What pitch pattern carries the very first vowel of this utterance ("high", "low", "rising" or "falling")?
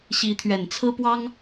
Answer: rising